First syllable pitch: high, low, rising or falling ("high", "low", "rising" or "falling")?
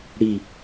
falling